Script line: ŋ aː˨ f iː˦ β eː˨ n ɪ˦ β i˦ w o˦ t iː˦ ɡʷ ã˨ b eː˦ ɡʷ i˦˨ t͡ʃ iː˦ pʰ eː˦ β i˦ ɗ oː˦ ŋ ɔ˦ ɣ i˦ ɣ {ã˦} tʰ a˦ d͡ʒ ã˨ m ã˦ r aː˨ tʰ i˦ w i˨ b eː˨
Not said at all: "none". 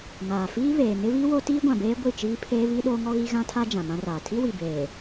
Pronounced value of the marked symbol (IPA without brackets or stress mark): ã˦